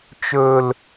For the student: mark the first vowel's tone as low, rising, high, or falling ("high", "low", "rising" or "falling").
high